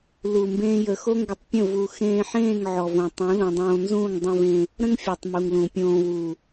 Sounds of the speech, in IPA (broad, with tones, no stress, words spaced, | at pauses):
lu˧mbẽː˦jə˧ xo˦ŋɡə˧tˤpʲə̃˦˨ vu˧ xẽː˧ħẽː˦˨ŋ ʕɔ˨võ˨ tˤũ˨˦lũ˨dˤõː˧nzũː˦˨ŋ dˤũ˧vẽ˧ | ɾə̃˦ŋfʲɔ˨tˤ mu˨ŋlũ˨pʲõː˧ wu˨